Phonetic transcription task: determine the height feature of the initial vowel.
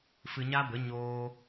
high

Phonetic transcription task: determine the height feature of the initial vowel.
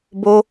mid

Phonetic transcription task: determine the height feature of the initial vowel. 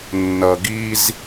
mid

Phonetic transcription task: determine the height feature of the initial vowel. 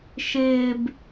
high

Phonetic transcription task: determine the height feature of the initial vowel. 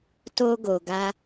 mid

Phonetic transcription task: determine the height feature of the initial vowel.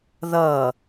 mid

